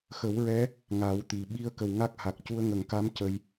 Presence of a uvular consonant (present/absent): absent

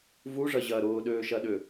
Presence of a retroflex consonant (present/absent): present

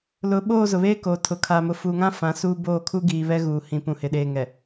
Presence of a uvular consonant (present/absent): absent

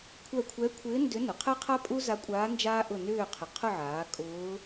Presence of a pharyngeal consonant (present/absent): present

